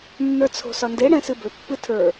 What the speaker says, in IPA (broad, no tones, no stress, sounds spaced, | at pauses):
nː ə˞ t͡sʰ o̤ s ɒ n d e ɽ ɛ̃ s ɨ b ʏ pː ɨ tʰ ə˞